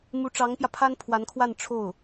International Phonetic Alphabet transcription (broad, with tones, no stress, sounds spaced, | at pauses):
m u˧˥ ʈ͡ʂ ɑ˧˥ ŋ p j ä˧ pʰ a˥ n pʰ w a˧˥ n kʰ w a˥˧ n ʈ͡ʂʰ o˥˩ ʊ̯